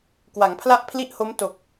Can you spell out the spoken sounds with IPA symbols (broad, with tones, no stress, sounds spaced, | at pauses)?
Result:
k w a˩˦ ŋ pʰ l a˥˩ ʔ pʰ l i˥˩ ʔ h o˦˥ m t o˨˩ k̚